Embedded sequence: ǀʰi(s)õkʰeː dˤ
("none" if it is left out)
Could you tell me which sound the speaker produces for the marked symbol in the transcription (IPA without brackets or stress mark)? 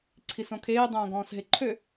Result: s